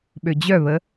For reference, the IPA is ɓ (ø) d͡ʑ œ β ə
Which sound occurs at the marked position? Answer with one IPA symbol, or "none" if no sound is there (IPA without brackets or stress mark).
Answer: ø